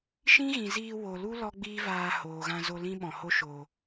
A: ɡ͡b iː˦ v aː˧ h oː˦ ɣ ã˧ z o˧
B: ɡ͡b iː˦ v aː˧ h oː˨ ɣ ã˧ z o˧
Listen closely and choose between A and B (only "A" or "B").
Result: B